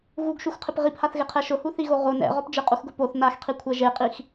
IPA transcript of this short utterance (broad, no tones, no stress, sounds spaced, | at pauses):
ɣ u ɡ ʃ u x qʰ ɪ p ʁ i p h a θ ɣ ɪ qʰ ɛ ʃ ʊ h u θ i ɣ o ʁ o n ɛ̰ ʁ ɔ p d͡ʒ ɪ qʼ u x ɡ ʊ p o θ n a x qʰ i kʷʰ ɛ ʒ e qʼ i x